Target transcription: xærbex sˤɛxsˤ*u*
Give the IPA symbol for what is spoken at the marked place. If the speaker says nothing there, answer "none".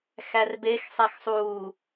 uː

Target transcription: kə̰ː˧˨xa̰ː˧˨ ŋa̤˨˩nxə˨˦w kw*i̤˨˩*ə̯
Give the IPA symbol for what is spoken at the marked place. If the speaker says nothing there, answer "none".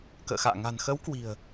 i̤˨˩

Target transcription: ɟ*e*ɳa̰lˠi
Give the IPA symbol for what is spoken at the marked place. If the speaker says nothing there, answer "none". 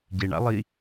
e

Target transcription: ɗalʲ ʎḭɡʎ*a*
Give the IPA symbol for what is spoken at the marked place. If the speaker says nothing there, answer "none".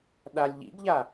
a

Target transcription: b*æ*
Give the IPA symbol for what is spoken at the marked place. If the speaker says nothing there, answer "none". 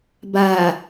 a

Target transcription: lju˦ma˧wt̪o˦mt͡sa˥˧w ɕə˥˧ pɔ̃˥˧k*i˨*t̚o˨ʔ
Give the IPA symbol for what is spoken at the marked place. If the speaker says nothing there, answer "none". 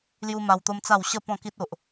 i˦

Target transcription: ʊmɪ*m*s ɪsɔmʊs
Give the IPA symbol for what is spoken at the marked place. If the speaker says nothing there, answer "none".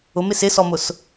none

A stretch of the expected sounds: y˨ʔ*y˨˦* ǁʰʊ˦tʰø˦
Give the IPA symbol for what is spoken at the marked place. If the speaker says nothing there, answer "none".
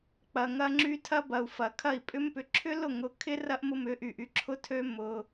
y˨˦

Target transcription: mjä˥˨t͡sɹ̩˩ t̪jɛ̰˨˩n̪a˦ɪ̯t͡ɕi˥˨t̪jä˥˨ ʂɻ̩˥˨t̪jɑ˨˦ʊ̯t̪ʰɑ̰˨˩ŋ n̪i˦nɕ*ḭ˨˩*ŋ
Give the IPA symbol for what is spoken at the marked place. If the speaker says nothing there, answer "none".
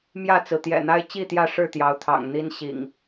ḭ˨˩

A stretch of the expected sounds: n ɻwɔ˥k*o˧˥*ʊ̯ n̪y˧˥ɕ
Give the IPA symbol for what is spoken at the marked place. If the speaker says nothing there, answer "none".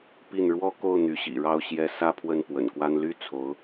o˥˩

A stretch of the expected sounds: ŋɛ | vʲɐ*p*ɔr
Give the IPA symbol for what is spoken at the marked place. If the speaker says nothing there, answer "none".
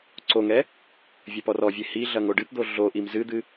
p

